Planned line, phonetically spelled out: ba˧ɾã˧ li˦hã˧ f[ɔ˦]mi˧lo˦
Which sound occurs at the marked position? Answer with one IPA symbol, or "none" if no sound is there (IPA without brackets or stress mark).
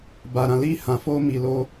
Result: o˦